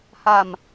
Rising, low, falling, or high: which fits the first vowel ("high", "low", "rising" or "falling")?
falling